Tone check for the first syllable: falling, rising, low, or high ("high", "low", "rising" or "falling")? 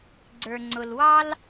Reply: low